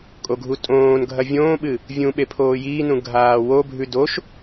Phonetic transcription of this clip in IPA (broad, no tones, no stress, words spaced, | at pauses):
kʼoɡʱutʼõːnɡʱɐ vʲõːɓɨ | vʲũ ɓepʰoːjiːnũ ɡʱaːwobʱʉ doʃ